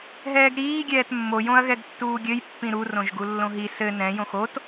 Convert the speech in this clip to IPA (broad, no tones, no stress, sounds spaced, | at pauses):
ɦ ɛː ɡ ɾ iː ɡʲ ɛː t mː o j õ ɐ̯ ɣ ɛ ɡ tː uː ɡʲ ɘ j pː ĩ ɾ u r õ ʒ ɡ u lː õ ɦ i s ɘ n ɛ̃ j õ x o t